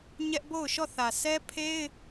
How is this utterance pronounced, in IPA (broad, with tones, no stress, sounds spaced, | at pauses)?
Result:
ɲ ɛ˦ ʔ b o˦˨ ʊ̯ ʃ ɔ˦˨ θ ä˨ sʰ ɛ˦ pʰ e˦ ɪ̯